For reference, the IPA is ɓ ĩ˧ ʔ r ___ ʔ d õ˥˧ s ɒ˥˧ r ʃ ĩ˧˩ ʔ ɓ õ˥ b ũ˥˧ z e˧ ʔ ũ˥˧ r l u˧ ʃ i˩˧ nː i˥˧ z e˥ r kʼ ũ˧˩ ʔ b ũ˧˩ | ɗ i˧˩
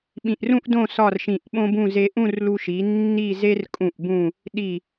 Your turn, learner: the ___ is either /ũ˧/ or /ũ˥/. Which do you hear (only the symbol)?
ũ˥